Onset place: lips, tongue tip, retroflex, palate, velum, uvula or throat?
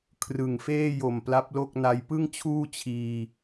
velum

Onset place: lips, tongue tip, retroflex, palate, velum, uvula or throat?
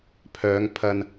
lips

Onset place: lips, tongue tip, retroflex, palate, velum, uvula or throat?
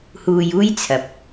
throat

